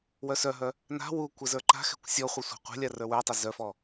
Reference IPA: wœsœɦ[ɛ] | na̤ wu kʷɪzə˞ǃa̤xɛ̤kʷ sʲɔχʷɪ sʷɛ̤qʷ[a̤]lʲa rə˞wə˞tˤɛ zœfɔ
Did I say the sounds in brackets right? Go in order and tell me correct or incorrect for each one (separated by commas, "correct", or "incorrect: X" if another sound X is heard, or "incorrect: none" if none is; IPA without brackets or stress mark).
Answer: incorrect: œ, correct